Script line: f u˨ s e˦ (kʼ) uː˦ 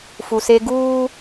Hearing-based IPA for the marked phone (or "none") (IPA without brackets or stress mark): ɡ